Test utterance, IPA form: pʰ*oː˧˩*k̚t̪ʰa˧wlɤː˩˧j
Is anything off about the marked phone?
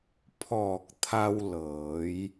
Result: yes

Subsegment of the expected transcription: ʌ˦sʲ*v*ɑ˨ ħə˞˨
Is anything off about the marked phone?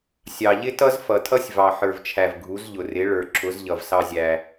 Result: no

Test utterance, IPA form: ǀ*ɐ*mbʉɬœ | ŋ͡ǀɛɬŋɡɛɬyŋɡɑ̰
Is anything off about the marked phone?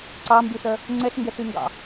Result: yes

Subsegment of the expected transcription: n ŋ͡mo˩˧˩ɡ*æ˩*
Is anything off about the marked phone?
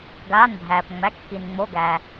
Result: no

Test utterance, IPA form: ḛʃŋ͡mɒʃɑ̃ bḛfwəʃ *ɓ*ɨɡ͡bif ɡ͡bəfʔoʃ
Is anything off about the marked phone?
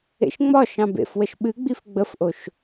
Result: no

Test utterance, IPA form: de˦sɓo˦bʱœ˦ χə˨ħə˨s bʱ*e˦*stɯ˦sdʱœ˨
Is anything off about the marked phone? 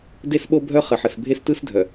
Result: no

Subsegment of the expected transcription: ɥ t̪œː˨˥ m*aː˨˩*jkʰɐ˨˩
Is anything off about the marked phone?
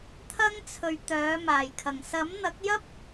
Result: no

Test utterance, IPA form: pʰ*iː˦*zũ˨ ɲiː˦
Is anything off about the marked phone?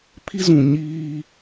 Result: yes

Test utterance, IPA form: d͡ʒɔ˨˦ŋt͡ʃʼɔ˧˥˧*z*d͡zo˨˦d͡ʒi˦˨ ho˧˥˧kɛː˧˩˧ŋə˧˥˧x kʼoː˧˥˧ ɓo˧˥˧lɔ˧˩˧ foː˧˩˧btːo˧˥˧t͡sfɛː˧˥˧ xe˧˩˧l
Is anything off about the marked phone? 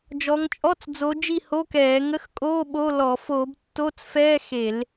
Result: yes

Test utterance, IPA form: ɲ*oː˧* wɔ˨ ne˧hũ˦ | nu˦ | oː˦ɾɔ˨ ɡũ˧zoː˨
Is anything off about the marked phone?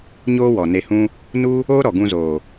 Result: no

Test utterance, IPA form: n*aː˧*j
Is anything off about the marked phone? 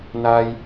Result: no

